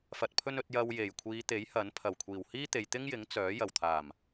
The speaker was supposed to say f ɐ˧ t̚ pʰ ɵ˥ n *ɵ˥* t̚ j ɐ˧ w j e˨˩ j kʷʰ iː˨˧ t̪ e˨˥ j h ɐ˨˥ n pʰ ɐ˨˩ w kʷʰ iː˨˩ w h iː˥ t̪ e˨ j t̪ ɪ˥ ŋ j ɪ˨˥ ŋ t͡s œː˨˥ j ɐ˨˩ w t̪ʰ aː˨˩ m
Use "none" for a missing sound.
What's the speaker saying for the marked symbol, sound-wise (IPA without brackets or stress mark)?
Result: ɵ˧